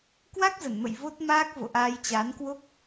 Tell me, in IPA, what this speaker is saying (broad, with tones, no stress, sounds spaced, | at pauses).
k w a˦˥ k̚ z ə˧˩ n m ə̰˧˨ j v o˦˥ t̚ m aː˦˥ k̚ v o̰˧˨ ʔ aː˧ j t͡ɕ aː˨˦ n k w o˦˥ k̚